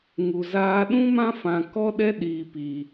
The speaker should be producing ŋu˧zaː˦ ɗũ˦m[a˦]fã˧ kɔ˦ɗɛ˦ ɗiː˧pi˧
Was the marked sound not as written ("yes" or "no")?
yes